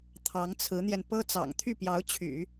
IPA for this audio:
t̪ʰɑ˧˥ŋt͡sʰɹ̩˧˥n̪jɛ˧n pɤ˥t͡sɑ̰˨˩ŋ t̪ʰy˥˩pjɑ˧˥ʊ̯t͡ɕʰy̰˨˩˦

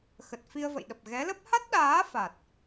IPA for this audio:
xə˨˩t̚fi˧ə̯və̰˧˨jɗə˨˩p̚ ɣɛ˨˦lə˦˥p̚ ha˦˥t̚ɗaː˨˦ fa˨˩t̚

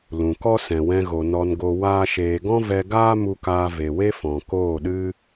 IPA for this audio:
lũ˨kɔ˦ sɛ̃˨wɛ̃˧ɣo˨ nɔ˧nɡo˧ waː˦ʃeː˧ ɡɔ̃˦vɛ˧ɡaː˦ mu˧kaː˧ ve˨we˦ fɔ̃˨koː˦˨ɗɨ˦

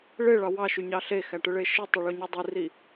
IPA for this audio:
ɭeɭɑ wɑʃyɲɑ ɬexæʈɯɭe ʃɯtˤiɭoɲu dˤiri

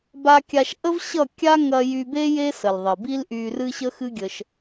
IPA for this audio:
ba˧kʲa˧ʃ ʔə˦v ɕʌ˦˨ kʲa˦ŋɐ˧ jy˧be˦ je˦sə˨lðˤə˨ bi˦lʔy˧ rɨ˦ɕə˦xɨ˦ɡʲə˧ʃ

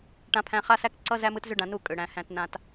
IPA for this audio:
ʈã˦pʰæ̃˦ χa˦sæ˦k ǀʌ˦zæ˦m ɯ˦tzʏ˦ɖã˧nu˦˨ kʼʏ˨ɽæ̃˨ hæ̃˧tnã˧t

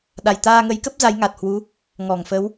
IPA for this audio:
ɗa˨˩jt̪aː˧ŋə˨˦jkə˦˥p̚ za˨˦jŋa˨˩t̚hwu˨˦ | ŋɔ˧˩ŋfə˨˦w

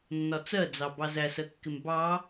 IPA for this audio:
nːɒt͡sɜd͡zɑ bɑzæsɜkːɪm bɑ

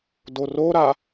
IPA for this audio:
doroɾa

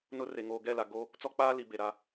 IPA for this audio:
nʊ˦re˨ ŋoː˨ɡɛ˦˨la˨ ɡoː˦ | t͡sɔ˦k͡paː˦li˨ be˨ɾa˦

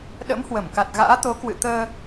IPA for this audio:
ɗə̰˧˥mhwə˧˩mka˨˩t̚ ɣa̰ː˧˥t̪o˨˦kwɨ̰˧˨ t̪əː˧

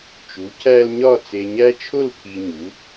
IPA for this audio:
t͡ʃu˩˥cʰæ˦lɲɒ˥˨ t͡se˨ɲæ˦t͡ʃʰo˥˨l pʰi˨ ɲu˩˥

